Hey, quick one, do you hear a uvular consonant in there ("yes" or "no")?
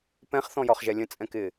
yes